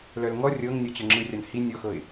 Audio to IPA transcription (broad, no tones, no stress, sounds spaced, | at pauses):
l œ l ŋ ɔ rʲ ɤ ŋ nʲ ɤ t͡ɕ ɤ ŋ͡ǁ ɯ rʲ a n h i nʲ ɔ x ɤ ɪ̯